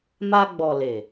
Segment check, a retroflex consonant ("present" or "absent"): absent